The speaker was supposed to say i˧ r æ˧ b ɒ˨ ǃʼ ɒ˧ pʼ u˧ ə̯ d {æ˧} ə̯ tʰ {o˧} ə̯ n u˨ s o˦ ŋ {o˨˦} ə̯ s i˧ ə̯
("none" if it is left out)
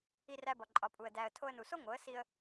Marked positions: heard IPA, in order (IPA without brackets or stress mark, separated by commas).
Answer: æ˧, o˧, o˨˦